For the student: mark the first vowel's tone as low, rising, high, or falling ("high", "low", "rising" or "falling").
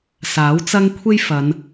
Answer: rising